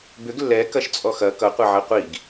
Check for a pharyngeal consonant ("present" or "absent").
present